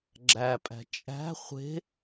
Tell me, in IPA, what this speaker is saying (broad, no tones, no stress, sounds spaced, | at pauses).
ɡ͡ǁ æ pʼ æ̤ t͡ʃʼ æ̤ χʷ e̤